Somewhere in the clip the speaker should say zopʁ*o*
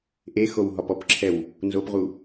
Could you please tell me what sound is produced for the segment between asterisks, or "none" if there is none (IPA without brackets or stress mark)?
u